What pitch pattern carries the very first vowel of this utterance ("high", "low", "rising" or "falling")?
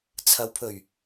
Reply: low